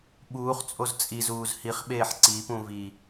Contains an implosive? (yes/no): yes